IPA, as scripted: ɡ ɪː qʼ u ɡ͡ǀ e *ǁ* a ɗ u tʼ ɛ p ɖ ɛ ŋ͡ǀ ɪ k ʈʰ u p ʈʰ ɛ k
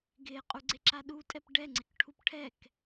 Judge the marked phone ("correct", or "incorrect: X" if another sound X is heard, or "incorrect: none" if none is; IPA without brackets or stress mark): correct